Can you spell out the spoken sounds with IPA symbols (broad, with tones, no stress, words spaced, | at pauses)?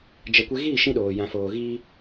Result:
d͡ʒɛ˨ kʷe˧ɣiː˦˨ʃĩ˧ɗoː˨ jã˨foː˨ɣiː˧